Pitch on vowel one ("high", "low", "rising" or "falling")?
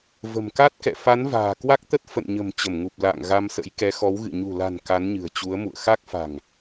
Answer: low